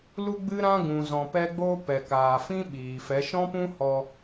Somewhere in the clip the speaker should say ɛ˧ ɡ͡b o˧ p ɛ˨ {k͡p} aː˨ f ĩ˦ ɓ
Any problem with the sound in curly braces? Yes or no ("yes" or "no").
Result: yes